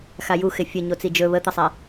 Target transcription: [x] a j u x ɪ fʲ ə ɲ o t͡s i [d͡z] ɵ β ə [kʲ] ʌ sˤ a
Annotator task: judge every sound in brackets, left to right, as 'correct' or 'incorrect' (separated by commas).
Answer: correct, incorrect, incorrect